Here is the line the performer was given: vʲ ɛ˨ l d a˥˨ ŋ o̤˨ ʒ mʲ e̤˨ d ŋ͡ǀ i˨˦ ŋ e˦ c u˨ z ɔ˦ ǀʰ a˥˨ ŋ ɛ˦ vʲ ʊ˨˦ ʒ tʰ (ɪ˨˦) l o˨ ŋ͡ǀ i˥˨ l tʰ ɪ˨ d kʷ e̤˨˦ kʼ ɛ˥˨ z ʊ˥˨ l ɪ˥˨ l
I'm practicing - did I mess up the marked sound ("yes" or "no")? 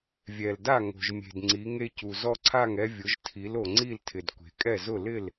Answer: yes